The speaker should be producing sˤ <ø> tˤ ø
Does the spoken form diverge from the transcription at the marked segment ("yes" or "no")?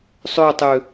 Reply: no